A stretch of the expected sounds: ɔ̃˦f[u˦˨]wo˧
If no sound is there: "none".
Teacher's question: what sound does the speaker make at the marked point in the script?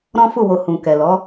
u˦˨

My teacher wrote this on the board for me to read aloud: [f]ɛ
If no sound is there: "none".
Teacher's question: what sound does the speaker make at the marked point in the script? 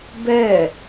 b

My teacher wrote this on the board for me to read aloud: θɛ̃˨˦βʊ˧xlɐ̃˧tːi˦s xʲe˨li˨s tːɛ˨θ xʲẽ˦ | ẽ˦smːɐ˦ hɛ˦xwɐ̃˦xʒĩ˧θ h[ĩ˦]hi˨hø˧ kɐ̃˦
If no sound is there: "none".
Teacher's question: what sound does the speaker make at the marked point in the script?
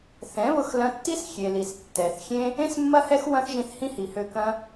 ĩ˦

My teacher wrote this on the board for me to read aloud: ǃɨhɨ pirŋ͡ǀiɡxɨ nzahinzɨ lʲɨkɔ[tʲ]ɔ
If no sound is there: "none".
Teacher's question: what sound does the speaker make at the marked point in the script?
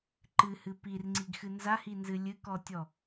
tʲ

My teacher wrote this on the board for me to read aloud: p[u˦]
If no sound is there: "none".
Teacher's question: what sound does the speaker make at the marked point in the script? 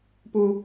u˦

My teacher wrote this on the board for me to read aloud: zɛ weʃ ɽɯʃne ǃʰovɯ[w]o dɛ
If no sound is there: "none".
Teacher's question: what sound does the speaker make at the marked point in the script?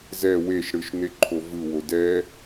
w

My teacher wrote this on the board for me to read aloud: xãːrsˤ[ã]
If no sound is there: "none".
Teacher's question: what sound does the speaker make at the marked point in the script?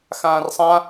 ã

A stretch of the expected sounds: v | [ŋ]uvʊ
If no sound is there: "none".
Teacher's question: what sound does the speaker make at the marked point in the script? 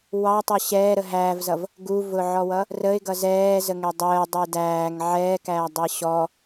ɡ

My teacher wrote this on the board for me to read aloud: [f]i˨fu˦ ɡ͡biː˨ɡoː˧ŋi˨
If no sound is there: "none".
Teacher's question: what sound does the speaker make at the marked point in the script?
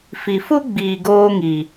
f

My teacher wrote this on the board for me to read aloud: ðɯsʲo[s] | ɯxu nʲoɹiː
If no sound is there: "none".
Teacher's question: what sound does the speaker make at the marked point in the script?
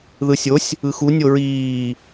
sʲ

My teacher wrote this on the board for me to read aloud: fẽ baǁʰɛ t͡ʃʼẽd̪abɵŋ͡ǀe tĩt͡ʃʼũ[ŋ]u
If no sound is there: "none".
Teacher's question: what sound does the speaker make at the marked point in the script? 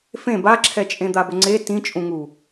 ŋ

